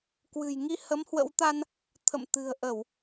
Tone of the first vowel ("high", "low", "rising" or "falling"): low